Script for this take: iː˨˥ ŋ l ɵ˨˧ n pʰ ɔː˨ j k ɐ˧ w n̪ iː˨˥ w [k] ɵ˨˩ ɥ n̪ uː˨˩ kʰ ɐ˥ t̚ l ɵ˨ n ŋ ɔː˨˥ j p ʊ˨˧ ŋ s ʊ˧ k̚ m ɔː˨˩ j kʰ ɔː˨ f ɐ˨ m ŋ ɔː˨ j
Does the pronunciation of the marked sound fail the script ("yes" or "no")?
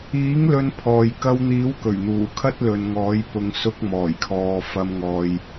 no